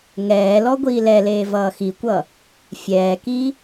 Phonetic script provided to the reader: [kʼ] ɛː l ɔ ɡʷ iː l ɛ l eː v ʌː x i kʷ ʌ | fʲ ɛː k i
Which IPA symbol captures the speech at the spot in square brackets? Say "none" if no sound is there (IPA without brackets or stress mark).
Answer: ŋ